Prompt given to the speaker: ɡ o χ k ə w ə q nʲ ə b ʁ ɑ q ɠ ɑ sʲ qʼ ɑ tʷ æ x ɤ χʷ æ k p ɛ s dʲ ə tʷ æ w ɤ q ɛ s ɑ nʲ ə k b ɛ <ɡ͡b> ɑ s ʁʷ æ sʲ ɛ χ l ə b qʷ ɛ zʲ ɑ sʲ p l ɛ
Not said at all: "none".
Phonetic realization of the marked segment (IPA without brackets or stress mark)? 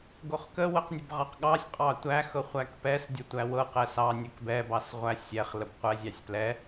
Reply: b